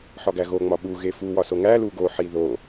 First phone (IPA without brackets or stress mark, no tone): ħ